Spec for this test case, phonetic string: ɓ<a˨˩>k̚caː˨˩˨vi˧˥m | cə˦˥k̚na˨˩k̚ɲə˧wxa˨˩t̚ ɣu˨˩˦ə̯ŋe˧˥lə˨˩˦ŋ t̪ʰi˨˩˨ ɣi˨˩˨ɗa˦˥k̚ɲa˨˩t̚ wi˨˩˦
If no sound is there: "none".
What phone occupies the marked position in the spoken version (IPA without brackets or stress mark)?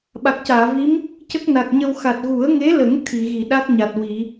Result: a˨˩